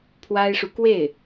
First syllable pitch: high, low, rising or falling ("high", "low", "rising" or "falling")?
high